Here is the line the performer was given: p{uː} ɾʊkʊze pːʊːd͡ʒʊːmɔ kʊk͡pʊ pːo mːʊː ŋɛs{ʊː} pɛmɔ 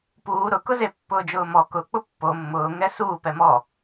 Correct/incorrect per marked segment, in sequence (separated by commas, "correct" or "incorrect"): correct, incorrect